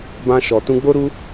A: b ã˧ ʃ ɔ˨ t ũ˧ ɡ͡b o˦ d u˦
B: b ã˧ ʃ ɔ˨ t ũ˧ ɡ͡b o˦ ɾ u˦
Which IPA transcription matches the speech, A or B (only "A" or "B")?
B